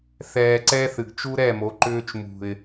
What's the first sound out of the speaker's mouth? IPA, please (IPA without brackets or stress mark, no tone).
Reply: θ